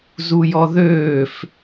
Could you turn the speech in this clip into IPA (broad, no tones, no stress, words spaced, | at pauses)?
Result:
zujɔðøːf